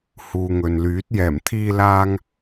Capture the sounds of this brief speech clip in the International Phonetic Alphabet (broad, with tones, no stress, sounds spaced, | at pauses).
h uː˨ ŋ ɵ˨ n l yː˨˥ t̚ j ɛː˨˩ m t̪ʰ iː˧ l aː˧ ŋ